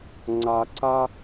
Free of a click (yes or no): no